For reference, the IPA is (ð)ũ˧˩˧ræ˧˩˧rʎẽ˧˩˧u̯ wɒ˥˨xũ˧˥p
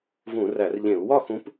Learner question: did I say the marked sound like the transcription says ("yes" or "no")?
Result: no